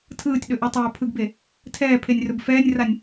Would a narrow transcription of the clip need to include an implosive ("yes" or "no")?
yes